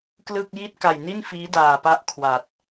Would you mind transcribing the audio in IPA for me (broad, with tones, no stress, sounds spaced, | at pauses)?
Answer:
k l ɯ˥˩ k̚ j i˥˩ t̚ k a˨˩ j n i˥˩ n f iː˦˥ d aː˨˩ p a˦˥ ʔ kʰ w a˨˩ t̚